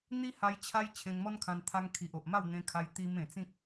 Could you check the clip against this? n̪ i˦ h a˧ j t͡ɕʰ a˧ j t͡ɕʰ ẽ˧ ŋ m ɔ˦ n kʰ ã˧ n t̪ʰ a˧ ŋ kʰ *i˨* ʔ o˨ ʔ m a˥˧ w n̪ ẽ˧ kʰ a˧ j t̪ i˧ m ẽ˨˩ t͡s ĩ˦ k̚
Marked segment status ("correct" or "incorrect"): correct